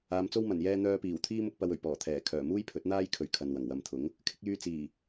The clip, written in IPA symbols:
aː˨˧ m t͡s o˥ w m ɐ˨˩ n j ɛː˧ n̪ œː˧ p iː˨˩ w t̪ʰ iː˥ m ʊ˧ k̚ p ɐ˨ w ɵ˨˩ ɥ p ɔː˨˩ t̪ʰ ɛː˨˩ kʰ œː˨˩ m uː˥ j pʰ ɵ˨˥ t̚ n̪ aː˥ j kʰ ɵ˨ ɥ kʰ ɐ˨ n w ɐ˨˩ ŋ w ɐ˨ m t̪ʰ ʊ˨˥ ŋ | kʰ ɪ˧ k̚ j yː˧ t͡s iː˨˩

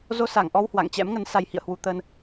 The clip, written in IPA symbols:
z o˧ s a˧˩ ŋ ʔ ɔ˧ w h w a̰˧˨ ŋ t͡ɕ ɛ̰˧˥ m ŋ ə˨˦ n s a˧ j h ḭ˧˨ ə̯ h w u˧ t̪ ə˧ n

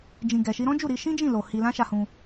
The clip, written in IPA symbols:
d͡ʒ ĩ˨ ɡ ɛ˨ ʃ i˧ ɾ ɔ̃˦ d͡ʒ u˦˨ ɾ i˧ ʃ ĩ˦ d͡ʒ ĩ˦˨ l o˨ h i˧ l ã˦ ʃ a˧ h ũ˧

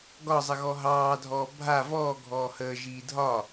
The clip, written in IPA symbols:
ɡ ɒ zˤ ə ɣ ɔ ɦ ɑː dʱ ɔː bʱ a v ɔː ɡʱ ɔː h əː ʒ iː dʱ ɒ

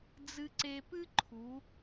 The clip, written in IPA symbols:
d͡z ɨ˧ ǀ e˧ p ɨ˥ ǃʰ u˩˧

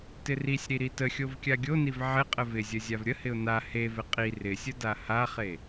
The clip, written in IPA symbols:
t ɪ r i sʲ ɾ i ɾ i t ə xʲ o v kʲ a ɡʲ o n i v ʕ ɪ qʼ ə v ɪ zʲ ə zʲ a v ɾʲ ə h ɪ ʊ̯ n a h e v ɪ qʼ i r ɪ sʲ ə d a h a χ e

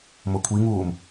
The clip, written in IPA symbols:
m ʊ kʷʰ i ŋ uː m

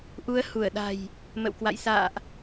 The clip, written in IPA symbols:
ʔ u˨˦ ə̯ h u˧˩ ə̯ ɗ a̤˨˩ j | m ə̰˧˨ w k w a̰˧˨ j s a̰ː˧˨ ʔ

